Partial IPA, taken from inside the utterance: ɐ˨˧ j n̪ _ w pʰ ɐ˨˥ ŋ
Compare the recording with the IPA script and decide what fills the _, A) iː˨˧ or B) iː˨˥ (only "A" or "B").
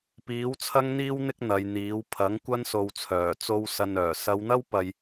B